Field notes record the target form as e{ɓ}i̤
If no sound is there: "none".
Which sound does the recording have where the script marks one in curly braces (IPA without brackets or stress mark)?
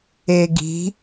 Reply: ɡ